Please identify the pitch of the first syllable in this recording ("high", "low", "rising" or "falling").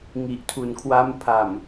low